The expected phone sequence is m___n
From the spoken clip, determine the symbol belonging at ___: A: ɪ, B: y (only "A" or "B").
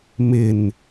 A